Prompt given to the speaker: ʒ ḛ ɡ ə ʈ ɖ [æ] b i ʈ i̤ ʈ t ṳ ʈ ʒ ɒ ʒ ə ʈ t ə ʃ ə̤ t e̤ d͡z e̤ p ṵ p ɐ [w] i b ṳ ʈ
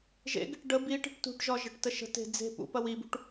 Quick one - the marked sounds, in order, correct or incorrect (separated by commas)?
incorrect, correct